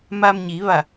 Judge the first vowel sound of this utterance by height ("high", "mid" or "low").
low